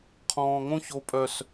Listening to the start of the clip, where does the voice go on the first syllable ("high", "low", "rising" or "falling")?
low